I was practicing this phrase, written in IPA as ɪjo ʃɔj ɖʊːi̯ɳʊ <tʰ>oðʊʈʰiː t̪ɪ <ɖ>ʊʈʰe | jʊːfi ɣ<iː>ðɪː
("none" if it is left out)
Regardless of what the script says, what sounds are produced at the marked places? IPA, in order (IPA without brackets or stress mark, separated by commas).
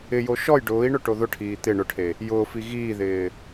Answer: ʈ, ɳ, iː